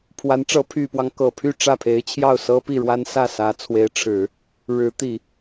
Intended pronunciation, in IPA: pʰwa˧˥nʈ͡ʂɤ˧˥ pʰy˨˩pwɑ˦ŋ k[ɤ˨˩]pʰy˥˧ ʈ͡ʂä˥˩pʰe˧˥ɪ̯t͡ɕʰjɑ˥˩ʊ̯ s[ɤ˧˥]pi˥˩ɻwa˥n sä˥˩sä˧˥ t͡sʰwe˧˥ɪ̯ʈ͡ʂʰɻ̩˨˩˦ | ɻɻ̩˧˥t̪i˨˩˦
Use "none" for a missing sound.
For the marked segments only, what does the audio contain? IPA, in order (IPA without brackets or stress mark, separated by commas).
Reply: ɤ˨˩, ɤ˥